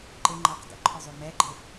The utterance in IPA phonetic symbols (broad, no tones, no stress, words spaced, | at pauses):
ǃɪŋ͡ǃɑq də̰ǃʰʊzˤu mɛɡ͡ǃɪ